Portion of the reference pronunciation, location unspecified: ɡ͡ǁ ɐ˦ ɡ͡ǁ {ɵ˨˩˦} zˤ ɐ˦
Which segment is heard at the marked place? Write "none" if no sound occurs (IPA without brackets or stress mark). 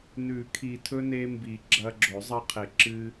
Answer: ɵ˨˩˦